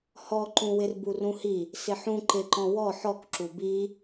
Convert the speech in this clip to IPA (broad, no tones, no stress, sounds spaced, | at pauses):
h ɔ ǃ ũ w ɪ r b u r ũ h i | s ɪ ħ ũ ǃ ɪ ǃ ɔ̃ w ɔ ħ ɔ k ǁ u b i